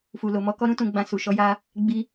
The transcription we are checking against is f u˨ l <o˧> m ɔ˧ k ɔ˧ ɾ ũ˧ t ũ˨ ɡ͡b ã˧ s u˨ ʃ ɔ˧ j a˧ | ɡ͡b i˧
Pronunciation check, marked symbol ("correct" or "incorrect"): incorrect